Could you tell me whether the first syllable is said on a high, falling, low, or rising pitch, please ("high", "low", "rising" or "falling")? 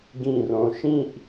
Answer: falling